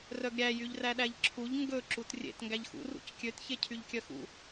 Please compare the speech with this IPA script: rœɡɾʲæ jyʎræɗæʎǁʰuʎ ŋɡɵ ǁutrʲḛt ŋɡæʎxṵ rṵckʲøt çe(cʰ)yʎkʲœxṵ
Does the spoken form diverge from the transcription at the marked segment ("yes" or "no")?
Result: no